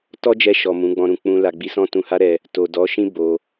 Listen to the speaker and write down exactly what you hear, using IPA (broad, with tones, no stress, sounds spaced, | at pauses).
t ɔ˦ d͡ʒ ɛ˧ ʃ ɔ˨ m ũ˨˦ ɡ͡b ɔ̃˧ ɾ ũ˨ k͡p ũ˧ l a˨ ɡ͡b i˨˦ s ɔ̃˦ t ũ˧ h a˦ ɾ ɛ˧ | t o˨ d ɔ˨˦ ʃ ĩ˦ b o˧